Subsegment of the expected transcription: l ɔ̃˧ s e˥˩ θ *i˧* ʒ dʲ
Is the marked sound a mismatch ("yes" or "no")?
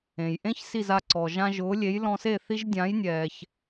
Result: no